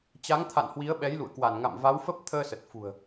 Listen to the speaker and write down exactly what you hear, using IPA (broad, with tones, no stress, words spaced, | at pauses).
t͡ɕa˨˦ŋt̪ʰa̰˧˨n hwi˨˦ə̯ɓɛ˨˦jlṵ˧˨ə̯kwa˧˩n ŋa̰˧˨mva˨˦wfə˦˥p̚ t̪ʰəː˧sə˨˩t̚fṳ˨˩ə̯